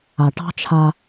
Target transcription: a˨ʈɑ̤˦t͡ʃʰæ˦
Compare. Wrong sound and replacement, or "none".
æ˦ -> a˦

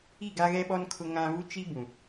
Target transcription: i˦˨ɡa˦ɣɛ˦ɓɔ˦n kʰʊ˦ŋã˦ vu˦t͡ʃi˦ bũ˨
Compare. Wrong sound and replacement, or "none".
none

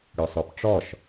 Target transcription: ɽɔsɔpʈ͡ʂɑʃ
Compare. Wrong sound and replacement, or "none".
ɑ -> ɔ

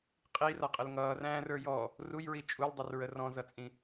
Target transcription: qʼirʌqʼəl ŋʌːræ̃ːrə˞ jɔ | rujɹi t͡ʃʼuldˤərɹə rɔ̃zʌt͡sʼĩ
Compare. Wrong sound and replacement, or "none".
none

